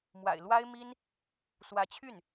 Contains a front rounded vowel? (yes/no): yes